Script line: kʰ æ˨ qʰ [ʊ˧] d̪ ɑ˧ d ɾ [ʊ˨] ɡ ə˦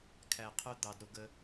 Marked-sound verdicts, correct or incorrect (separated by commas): correct, incorrect